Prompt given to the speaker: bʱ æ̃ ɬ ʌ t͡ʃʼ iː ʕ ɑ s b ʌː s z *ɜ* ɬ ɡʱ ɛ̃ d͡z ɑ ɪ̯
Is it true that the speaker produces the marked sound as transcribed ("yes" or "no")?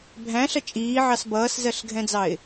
yes